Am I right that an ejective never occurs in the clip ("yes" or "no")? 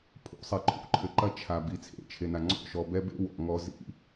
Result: yes